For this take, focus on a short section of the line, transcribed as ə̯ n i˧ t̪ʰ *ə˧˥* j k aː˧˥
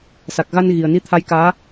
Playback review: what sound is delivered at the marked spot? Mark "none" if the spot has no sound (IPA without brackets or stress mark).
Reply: a˧˥